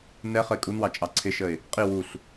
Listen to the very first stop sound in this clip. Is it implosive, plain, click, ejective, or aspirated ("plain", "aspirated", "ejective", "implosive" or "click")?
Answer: ejective